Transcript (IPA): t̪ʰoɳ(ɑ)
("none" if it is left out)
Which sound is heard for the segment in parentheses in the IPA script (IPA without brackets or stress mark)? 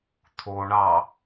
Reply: ɑ